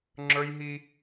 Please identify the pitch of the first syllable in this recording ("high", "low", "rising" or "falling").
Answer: high